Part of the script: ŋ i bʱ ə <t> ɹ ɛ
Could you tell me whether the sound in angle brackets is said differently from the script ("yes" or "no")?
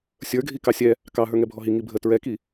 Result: no